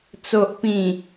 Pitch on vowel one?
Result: low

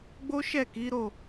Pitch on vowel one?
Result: high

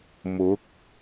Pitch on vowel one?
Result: rising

